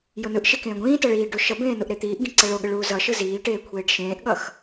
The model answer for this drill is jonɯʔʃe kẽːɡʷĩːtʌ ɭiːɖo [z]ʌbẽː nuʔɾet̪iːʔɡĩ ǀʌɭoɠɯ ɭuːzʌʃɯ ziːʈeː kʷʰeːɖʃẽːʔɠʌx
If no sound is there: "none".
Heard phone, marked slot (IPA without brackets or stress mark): ʃ